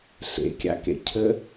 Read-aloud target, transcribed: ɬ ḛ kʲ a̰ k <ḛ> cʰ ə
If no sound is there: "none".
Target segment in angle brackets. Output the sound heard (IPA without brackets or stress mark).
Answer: ḛ